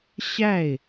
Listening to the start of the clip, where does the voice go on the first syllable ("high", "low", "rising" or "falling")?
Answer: falling